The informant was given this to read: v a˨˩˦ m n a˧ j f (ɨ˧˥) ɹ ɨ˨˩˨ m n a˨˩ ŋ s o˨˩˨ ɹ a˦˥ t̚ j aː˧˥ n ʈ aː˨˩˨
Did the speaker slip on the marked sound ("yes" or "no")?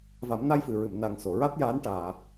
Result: yes